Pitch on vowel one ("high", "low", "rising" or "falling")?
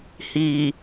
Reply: low